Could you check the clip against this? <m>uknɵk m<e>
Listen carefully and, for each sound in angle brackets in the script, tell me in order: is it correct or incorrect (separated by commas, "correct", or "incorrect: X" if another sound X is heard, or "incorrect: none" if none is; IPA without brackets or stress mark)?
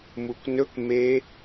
correct, correct